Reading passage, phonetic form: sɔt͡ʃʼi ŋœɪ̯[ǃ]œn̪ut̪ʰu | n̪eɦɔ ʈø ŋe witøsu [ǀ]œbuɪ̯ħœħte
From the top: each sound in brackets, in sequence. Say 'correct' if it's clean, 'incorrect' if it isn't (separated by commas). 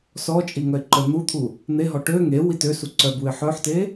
correct, correct